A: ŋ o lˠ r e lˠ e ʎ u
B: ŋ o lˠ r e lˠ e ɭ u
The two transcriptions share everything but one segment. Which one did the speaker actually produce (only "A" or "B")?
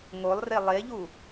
A